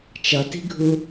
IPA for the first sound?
t͡ʃ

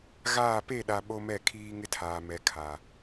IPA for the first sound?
ɣ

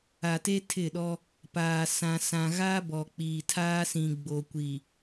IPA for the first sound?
a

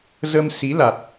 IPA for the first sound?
z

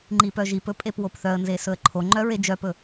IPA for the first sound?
ŋ͡ǃ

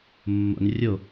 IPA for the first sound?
mː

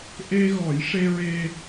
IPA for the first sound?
ʔ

